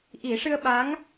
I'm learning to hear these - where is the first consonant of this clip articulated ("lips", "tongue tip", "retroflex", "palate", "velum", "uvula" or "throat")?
throat